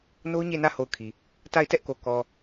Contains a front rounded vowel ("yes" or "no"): no